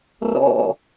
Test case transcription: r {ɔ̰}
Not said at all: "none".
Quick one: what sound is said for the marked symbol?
ɔ̰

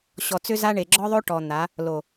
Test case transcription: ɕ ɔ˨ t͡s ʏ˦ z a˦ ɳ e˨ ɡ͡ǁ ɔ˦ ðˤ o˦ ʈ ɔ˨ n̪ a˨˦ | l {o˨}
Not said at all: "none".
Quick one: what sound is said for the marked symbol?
o˨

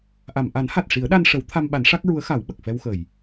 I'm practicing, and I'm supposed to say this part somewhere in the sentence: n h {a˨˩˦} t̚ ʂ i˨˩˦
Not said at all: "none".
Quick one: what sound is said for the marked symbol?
a˨˩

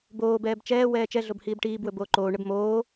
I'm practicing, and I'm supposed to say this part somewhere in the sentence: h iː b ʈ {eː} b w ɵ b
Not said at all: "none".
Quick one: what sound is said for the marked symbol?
iː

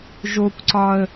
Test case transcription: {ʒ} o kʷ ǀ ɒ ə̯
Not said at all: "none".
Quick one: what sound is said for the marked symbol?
ʒ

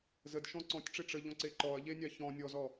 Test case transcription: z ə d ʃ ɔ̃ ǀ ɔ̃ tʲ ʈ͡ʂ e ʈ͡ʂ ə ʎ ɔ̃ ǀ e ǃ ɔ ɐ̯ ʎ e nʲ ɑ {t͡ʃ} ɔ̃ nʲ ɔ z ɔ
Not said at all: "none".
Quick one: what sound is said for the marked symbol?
ç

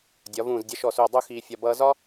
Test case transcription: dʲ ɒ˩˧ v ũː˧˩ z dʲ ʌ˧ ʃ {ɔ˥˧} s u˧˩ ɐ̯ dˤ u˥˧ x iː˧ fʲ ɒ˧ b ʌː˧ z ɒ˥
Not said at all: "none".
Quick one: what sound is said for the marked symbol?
ɔ˧˩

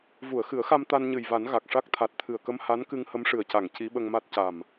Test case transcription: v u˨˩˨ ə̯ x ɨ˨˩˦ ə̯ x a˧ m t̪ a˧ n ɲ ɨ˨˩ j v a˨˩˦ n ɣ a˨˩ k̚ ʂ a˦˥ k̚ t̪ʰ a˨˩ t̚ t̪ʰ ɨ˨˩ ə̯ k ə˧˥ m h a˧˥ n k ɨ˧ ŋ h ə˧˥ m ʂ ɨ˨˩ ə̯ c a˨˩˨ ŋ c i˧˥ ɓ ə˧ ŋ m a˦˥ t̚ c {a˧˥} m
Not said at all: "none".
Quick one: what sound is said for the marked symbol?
a˨˩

